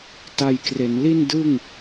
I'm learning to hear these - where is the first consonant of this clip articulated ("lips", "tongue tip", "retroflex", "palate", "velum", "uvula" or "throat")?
tongue tip